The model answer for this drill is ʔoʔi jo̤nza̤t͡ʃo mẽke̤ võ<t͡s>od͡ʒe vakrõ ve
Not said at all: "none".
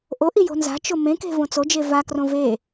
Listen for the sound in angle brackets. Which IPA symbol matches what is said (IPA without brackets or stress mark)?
t͡s